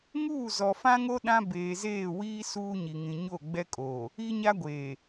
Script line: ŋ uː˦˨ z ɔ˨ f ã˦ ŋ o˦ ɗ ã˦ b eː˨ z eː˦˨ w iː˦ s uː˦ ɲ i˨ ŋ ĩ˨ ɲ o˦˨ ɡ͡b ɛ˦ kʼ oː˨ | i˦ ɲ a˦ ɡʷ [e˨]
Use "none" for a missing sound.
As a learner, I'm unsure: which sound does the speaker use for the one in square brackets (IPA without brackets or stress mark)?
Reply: eː˨